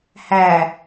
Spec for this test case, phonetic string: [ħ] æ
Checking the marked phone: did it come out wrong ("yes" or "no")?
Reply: yes